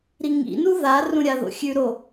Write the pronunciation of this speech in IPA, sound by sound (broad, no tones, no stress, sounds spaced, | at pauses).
ɾ i ŋ ḭ n u ð a r ũ ɾʲ a ð o̰ xʲ ʉ ɾ o